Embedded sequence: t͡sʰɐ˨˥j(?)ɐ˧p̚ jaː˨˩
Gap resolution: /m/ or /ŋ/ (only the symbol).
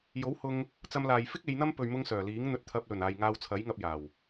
ŋ